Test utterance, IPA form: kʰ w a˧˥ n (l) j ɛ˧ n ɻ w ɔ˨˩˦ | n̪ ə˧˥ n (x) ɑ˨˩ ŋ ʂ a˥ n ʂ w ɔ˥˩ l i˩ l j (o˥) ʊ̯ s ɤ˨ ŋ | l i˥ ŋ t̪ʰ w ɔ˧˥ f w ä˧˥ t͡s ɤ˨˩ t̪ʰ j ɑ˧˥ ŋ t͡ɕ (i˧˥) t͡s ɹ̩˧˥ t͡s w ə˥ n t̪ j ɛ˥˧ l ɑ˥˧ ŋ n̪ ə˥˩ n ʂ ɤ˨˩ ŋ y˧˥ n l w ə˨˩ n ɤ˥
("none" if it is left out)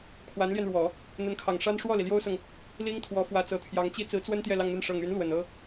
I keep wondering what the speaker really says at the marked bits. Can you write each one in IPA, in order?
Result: l, kʰ, o˥, i˥

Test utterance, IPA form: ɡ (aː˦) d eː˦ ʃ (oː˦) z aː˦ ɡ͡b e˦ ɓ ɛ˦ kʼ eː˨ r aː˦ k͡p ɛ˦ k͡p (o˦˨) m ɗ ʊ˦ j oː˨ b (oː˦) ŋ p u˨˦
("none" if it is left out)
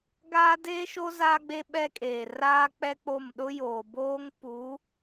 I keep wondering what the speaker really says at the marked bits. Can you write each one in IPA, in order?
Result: aː˦, o˦, o˦˨, oː˦

